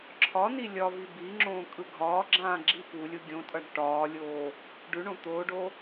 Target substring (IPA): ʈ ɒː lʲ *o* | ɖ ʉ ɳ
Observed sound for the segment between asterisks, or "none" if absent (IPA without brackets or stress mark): oː